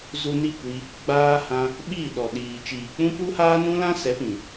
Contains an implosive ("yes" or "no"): yes